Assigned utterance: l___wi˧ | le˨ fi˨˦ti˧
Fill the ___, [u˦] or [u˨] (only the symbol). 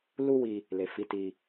u˦